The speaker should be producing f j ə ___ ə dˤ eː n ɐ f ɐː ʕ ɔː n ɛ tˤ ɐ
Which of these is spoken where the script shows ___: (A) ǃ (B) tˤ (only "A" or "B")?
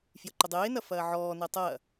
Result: A